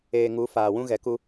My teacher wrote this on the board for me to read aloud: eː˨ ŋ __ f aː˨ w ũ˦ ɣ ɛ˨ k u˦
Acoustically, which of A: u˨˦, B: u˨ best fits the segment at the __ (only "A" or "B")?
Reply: A